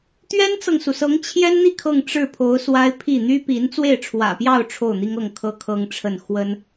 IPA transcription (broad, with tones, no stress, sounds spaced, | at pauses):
t̪ ɥ ɛ˥ n t͡s ɤ˨ ŋ s u˩ s ɤ˧˥ ŋ t͡ɕʰ j ɛ˥ n n̪ i˥˧ kʰ ɤ˥˧ ŋ ʈ͡ʂ ɻ̩˥˩ pʰ o˧˥ ʊ̯ s w a˥ ɪ̯ pʰ i˥˩ n̪ y˥ p i˧˥ n t͡s w e˥˩ ɪ̯ ʈ͡ʂʰ w ä̰˨˩ p j ɑ˥˧ ʊ̯ ʈ͡ʂʰ o˥˩ ʊ̯ n̪ i˥ ŋ ɤ˥˩ ŋ kʰ ɤ˥ kʰ ɤ˥ ŋ ʈ͡ʂʰ ə˥˩ n x w ə˥ n